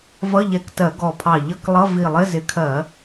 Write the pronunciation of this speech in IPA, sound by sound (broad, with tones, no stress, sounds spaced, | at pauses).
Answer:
v ʌ˧˥˧ ʎ ɛ˧˩˧ k t ɜ˧˩˧ ɡ ɔ˧˩ pʰ ɑ˧˩ ʎ ʌ˧˥˧ k lˠ ʌ˧˥˧ v i˧˩ lˠ ɪ˧˥˧ z ɪ˨˦ kʰ ɜ˧˩˧